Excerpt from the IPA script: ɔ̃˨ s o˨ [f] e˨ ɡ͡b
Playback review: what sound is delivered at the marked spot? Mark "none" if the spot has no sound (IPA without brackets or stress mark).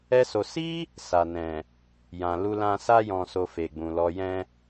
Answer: f